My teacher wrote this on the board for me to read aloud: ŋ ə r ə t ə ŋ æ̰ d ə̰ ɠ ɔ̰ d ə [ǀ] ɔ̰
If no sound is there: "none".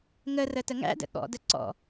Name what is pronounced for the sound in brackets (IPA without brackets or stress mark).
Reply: ǀ